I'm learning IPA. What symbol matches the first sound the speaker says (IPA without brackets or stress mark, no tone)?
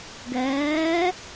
ɡ